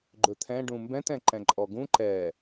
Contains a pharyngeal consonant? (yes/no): no